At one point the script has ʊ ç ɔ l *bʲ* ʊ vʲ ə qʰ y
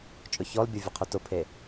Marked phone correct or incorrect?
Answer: correct